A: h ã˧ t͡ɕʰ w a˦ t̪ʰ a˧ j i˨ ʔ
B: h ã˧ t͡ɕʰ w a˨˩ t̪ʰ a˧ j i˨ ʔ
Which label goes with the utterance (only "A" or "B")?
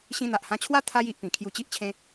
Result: A